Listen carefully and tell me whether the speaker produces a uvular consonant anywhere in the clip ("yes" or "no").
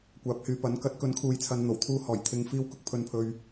no